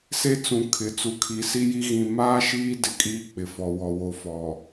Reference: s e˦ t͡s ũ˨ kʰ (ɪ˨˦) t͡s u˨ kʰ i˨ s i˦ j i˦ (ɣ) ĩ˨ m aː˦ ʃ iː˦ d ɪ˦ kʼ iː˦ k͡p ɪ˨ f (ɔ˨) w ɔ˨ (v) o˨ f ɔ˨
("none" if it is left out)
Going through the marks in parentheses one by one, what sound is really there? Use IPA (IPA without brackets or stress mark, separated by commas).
ɪ˨˦, ɣ, ɔ˨, w